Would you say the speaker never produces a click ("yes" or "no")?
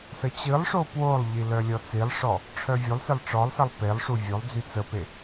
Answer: yes